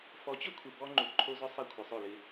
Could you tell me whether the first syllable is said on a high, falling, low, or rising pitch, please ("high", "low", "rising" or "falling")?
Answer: rising